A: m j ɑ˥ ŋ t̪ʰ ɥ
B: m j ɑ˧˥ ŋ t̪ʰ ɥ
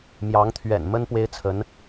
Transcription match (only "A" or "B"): B